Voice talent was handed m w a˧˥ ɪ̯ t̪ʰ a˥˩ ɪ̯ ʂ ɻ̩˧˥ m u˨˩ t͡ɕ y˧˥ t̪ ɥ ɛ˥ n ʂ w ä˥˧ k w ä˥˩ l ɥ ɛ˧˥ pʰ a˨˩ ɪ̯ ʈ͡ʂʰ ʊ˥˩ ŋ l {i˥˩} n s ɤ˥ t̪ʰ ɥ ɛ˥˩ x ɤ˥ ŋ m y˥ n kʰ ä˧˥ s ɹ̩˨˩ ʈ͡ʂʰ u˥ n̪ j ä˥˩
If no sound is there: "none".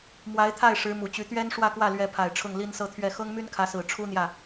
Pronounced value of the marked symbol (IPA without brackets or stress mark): i˥